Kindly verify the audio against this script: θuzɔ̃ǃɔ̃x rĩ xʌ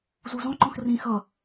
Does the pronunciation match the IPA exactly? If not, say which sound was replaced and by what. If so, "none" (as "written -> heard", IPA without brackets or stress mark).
θ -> z